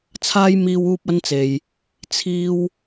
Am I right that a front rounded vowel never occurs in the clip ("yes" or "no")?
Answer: yes